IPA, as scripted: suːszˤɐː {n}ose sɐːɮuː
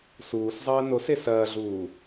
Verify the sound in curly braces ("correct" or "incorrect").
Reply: correct